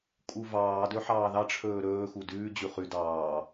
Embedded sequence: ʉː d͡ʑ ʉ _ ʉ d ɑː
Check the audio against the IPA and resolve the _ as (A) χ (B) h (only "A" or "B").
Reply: A